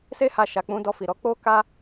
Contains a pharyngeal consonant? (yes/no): no